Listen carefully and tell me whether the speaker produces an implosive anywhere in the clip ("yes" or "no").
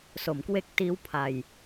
no